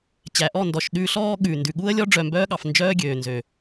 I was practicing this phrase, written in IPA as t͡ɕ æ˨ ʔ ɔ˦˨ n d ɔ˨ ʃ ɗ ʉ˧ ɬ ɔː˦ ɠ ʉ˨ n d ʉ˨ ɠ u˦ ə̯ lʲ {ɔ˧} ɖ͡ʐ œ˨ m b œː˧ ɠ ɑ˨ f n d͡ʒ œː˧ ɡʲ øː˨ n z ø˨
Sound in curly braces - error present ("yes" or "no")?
yes